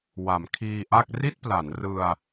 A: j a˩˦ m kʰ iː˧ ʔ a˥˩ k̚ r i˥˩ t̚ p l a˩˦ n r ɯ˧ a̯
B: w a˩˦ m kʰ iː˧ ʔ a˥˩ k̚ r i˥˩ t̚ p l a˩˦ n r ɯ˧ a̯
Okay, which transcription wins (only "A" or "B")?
B